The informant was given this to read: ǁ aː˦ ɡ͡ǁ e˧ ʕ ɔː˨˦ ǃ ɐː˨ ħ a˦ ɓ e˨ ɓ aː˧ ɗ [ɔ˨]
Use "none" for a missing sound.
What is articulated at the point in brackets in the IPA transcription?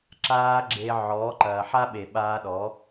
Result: ɔ˨˦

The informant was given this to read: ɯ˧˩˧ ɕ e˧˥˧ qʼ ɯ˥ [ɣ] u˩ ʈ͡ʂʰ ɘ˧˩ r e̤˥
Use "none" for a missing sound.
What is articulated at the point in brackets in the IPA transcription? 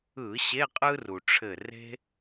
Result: r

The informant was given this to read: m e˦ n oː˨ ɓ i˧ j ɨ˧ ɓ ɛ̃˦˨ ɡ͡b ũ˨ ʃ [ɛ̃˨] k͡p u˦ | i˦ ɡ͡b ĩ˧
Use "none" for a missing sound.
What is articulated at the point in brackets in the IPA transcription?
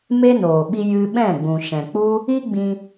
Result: ɛ̃˨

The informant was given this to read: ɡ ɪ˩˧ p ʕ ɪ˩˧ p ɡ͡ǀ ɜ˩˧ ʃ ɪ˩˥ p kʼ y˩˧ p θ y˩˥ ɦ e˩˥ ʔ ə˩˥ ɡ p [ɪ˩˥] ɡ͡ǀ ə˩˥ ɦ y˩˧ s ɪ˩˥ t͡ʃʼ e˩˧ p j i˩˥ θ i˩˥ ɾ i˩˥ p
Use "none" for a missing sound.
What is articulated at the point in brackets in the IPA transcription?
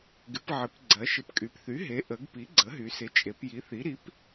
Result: i˩˥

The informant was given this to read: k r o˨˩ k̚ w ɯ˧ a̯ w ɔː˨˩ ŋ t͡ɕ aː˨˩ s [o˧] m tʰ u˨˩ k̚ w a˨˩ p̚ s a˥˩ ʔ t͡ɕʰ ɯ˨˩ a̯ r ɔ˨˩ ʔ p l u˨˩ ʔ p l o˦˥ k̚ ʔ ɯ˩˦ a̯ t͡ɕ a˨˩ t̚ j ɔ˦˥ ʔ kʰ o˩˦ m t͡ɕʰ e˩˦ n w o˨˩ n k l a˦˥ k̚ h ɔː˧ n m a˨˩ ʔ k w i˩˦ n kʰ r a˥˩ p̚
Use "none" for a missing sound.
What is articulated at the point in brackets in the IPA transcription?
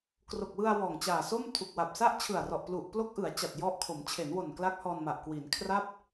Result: o˥˩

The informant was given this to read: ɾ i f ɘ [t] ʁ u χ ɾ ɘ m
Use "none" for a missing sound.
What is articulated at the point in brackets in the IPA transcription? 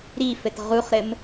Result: t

